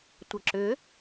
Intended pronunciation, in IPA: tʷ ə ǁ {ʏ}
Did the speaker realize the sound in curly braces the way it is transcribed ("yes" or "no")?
yes